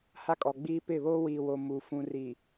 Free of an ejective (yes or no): no